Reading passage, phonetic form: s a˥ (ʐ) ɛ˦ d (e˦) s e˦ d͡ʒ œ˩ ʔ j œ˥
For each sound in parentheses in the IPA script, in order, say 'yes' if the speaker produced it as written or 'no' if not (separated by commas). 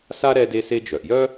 no, yes